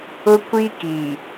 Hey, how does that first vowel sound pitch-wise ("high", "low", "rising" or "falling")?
high